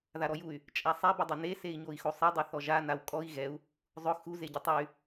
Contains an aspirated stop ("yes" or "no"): no